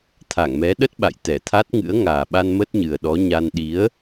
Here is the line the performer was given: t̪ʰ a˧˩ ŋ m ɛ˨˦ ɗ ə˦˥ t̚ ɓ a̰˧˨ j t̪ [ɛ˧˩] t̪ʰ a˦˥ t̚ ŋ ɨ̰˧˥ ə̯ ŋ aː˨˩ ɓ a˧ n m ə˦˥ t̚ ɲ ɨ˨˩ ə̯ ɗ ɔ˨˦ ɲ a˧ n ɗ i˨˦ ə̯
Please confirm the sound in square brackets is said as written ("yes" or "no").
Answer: yes